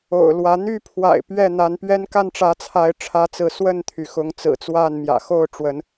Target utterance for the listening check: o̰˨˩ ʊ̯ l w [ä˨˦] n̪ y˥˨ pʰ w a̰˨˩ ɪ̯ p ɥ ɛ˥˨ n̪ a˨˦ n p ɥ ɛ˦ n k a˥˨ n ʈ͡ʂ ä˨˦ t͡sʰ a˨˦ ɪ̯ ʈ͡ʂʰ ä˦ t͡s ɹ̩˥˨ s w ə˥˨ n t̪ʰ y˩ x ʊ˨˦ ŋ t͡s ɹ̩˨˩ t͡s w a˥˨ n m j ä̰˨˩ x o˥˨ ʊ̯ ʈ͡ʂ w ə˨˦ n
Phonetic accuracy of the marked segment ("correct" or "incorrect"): correct